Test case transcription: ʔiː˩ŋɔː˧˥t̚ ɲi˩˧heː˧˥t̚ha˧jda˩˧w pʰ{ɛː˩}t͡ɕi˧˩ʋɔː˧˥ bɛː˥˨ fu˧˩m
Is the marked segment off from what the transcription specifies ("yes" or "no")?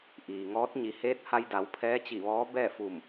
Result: yes